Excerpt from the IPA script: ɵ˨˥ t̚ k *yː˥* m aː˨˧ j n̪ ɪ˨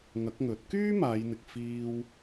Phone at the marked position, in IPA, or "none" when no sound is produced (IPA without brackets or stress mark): yː˥